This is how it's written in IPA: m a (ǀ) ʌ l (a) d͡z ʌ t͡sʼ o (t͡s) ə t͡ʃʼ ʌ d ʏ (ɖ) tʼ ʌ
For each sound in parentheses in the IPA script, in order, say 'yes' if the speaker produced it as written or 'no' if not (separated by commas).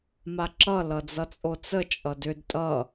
no, no, yes, no